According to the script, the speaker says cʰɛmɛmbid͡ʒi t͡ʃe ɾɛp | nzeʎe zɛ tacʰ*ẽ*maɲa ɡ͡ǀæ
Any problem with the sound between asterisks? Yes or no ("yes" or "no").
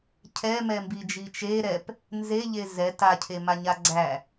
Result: yes